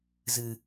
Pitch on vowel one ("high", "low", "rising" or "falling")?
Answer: low